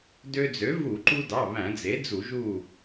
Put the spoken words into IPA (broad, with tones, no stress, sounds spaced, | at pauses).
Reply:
d ø˧ d͡z ø˩˥ v u˧˩˧ ǃ u˧ d ɑ˩˧˩ β æ̃˧˩˧ d͡z e˩˥ d͡z u˧˩˧ ʒ u˧˩